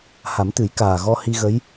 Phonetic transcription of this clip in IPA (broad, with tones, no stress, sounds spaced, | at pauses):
h a˨˩˦ m t̪ ɨ˨˩˦ j k aː˨˩ ɣ ɔ˧ h i˧ ɣ ə˧˥ j